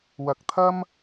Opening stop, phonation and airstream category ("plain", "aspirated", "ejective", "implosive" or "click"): plain